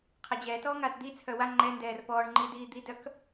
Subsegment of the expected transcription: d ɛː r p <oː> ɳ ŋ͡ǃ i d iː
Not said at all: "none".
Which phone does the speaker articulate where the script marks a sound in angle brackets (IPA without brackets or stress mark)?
ɔː